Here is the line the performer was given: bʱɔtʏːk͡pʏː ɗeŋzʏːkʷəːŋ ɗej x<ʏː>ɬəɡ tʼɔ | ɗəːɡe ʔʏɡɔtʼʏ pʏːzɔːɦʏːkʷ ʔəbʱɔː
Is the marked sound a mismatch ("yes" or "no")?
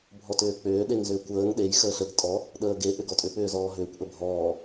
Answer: yes